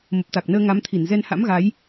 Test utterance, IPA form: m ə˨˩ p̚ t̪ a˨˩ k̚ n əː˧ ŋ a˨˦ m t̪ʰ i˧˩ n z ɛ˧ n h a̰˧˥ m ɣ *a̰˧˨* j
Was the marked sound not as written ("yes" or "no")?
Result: yes